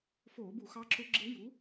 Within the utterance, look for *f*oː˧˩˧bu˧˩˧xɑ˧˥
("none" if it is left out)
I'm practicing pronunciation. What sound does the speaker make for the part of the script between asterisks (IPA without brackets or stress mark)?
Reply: f